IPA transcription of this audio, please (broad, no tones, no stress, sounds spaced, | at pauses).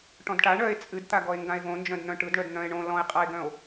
ʈ ɔ̃ d ʈ a ɳ œ e̯ t͡sʼ ɨ d t̪ a ɡ ɔ e̯ ŋ ɡ ã e̯ v õ n d͡ʒ œ̃ d n̪ œ̃ ʈ ɯ d ɳ œ d n̪ œ̃ e̯ ɳ õ l ɔ̃ e̯ qʼ a e̯ ɡ œ̃ o̯